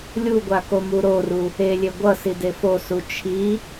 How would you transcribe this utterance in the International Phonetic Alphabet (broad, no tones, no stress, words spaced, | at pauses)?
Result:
lʲuɡʷakomu ɾoru | elʲe ɡʷʌside fosu t͡ʃʰi